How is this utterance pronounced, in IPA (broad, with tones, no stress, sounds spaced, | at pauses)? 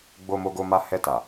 ɡ͡b o˧ m o˧ ɡ o˧ m a˧ h ɛ˧ t a˨